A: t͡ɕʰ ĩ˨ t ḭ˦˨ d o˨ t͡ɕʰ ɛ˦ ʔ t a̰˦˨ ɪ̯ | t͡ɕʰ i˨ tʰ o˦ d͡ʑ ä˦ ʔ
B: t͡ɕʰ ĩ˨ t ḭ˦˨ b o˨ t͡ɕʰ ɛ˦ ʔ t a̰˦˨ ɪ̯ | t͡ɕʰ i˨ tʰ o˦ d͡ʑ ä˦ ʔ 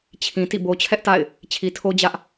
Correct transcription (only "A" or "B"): B